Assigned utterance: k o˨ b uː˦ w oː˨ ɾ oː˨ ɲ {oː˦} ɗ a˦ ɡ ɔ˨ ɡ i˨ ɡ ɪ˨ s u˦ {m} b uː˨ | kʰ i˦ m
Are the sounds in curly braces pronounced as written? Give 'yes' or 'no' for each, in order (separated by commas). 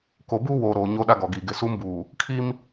yes, yes